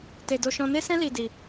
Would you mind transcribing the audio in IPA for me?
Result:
te˧do˧ ʃɔ̃˧ne˦sɛ̃˦ li˧di˧

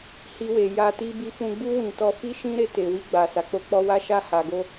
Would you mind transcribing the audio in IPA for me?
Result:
hi˧we˨ja˧ti˦ bi˧fũ˧ɡ͡bu˦ wĩ˧ tɔ˧fi˦ ʃĩ˦ɾe˧te˨wi˧ ɡ͡ba˨ sa˨k͡po˧k͡pɔ˧wa˦ ʃa˧ha˨ɡo˧

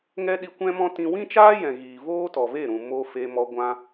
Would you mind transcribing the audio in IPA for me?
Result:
ŋɛ˦ɗi˧kʷɛ̃˦mɔ̃˦ tĩ˧ wĩ˦t͡ʃaː˦ jɛ̃˨ɣiː˨ voː˦tɔ˨ve˦˨ɾũ˨ mo˧ fe˧mɔ˧ ɡʷã˧

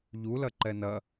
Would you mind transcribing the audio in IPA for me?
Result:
ʎulɐǃɛ nɐ

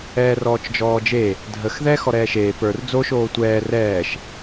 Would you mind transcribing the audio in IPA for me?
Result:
ɛːrɔːt͡ʃd͡ʒɔːd͡ʒe | dʱəx ðɛːxɔɾɛːʃeː pə˞r d͡zo ʃoːtʷɛː rɛːʃ

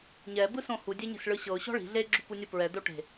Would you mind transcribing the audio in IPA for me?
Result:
ɲɛ bɯsõhu dʲeɲe̤sɭɯɕɤʊ̯ ɕɔ̤ɭi̤ ɮe ɡ͡ǁupunʲɯpɹɛ doʈe̤

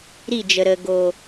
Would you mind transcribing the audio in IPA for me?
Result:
ɾi˦˨d͡ʒə˨ɾə˨ ɡo˨

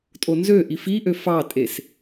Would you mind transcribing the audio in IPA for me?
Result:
tʼonzøʔi fiʔø fɑtʼes

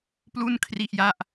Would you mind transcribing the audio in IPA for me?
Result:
plu˥˩nkʰri˥˩ʔja˥˩ʔ

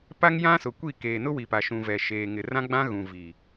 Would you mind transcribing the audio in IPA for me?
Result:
pa˦ŋjã˦sʊ˨kʷi˦˨ keː˨nʊ˦wi˨pa˨ ʃũ˨vɛ˨ ʃeː˨ŋɪ˨rã˦ɡ͡bã˦ ɣũ˨ vi˨

